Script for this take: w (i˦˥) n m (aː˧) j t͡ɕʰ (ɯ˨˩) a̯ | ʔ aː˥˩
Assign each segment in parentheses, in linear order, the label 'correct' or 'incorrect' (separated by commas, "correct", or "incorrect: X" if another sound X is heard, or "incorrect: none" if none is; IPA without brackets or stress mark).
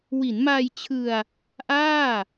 incorrect: i˩˦, correct, incorrect: ɯ˧